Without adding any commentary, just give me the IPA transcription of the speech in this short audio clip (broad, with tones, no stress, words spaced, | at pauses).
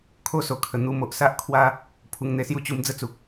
kʰo˦so˨˩kʰə˨˩ n̪u˧mo˨ʔsa˦ʔkʰwa˦ | pʰu˧ŋn̪e˧sju˥˧ t͡ɕu˧md͡zə˦t͡su˨k̚